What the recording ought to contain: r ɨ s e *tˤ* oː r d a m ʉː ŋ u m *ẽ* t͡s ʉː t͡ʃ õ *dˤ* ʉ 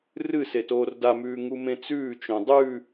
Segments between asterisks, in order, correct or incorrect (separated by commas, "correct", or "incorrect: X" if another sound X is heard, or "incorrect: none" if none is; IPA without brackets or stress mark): incorrect: t, correct, correct